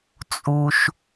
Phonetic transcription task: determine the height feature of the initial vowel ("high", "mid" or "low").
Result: high